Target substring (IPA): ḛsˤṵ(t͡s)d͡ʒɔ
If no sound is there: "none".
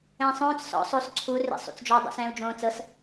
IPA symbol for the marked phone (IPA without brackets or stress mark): t͡s